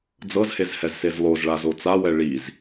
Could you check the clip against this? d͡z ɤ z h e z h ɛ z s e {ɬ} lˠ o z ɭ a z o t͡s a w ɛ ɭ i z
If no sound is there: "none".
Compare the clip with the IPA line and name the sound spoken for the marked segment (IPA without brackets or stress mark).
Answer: z